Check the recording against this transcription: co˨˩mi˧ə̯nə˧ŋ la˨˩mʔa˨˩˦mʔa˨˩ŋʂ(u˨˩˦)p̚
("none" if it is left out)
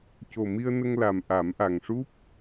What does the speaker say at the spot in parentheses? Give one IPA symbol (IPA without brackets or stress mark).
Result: u˦˥